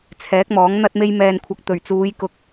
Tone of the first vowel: rising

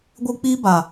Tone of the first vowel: high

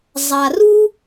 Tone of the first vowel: low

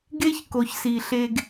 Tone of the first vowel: high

